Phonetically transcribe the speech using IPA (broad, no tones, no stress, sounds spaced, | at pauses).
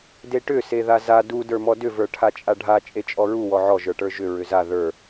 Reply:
d e ʈ ʏ s e ð a z a d u d ə˞ m ɔ d ʏ v ə˞ ʈʰ a t͡ʃʼ a ɖʱ a t͡ʃʼ e t͡ʃʼ ɔ ɹ u w ɔ ʕ ɔ ʒ ə˞ ʈ ə˞ ʒ ʏ ɹ ʏ z a ð ə˞